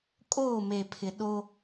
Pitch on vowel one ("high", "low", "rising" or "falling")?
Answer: falling